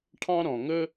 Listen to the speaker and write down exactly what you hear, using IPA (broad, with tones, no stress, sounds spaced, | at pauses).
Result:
ʈʰ ɑ̃˦ ɾ ɔ̃˨ ŋ ɵ˦